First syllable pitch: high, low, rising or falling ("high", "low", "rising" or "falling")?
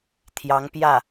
rising